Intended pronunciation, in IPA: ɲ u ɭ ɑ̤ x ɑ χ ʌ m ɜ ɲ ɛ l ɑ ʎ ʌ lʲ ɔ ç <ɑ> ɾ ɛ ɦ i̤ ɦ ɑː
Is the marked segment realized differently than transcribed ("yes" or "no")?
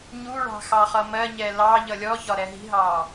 yes